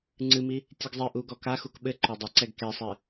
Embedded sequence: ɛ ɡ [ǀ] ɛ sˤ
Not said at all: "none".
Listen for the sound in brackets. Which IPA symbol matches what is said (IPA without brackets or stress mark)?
k